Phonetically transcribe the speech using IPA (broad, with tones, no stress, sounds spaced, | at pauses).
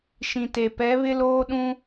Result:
ʃ ĩ˨ t e˨ p ɛ˨˦ β ɪ˦ l oː˦ ɗ ũ˦